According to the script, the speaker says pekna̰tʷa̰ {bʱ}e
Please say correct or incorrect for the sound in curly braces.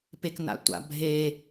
correct